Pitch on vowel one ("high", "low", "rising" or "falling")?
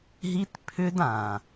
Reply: high